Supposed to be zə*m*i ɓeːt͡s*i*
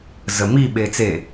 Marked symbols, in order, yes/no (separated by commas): yes, no